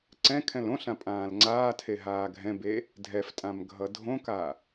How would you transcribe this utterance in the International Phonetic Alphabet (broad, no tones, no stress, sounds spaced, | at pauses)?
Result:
ǀ ɛ̃ kʰ ɛ̃ l õ ɬ ã pʼ ãː l ŋ͡ǀ aː tʰ e ɦ aː ɡʱ ɛ̃ b e | dʱ ɛ f tʼ ã m ɡʱ ʌ dʱ õ k a